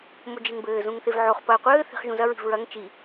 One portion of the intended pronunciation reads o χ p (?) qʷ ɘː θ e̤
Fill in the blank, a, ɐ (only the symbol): ɐ